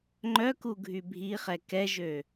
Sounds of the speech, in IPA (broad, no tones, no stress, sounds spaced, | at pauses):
ŋ͡ǃ œ k u ɡʱ y bʱ i χ ɛ k ɛ ʒ ø